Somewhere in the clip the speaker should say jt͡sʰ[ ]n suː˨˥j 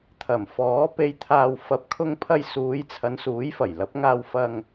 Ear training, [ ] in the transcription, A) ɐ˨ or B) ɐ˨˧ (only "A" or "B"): B